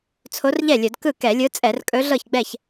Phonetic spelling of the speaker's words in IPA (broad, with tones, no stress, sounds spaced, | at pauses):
t͡sʰ o˧˥ r ʎ ɛ˥˩ lʲ ɵ˧˩˧ d k ɯ˥˩ k ɛ˧˩˧ lʲ ɯ˧˥ t͡sʼ ɛ˧˩˧ r kʼ ɵ˧˥ ɮ ɤ˥˩ ç ɡ͡b ɛ˥˩ ç